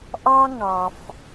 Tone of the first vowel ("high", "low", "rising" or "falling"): high